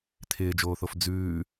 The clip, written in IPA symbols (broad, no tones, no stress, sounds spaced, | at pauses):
t̪ʰ ɪː d͡ʒ oː θ o f d͡z ʉː